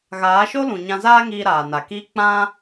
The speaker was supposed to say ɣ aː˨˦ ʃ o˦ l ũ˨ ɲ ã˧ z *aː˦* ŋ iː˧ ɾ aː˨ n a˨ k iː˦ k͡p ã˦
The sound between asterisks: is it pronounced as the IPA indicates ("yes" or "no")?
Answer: yes